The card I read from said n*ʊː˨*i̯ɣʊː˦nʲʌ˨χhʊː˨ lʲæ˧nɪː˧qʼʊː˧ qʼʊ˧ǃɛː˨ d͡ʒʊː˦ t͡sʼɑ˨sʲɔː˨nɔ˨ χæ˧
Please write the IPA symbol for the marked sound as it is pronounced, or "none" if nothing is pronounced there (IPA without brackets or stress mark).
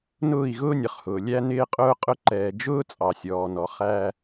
ʊː˦˨